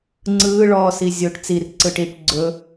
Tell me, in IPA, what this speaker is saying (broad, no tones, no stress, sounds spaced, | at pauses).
ŋ͡ǀ ɯː ɭ ɔː s i zʲ o ʈ t͡s i r ǀ ɯ ʈ iː ʈ ɡ͡ǀ ɵ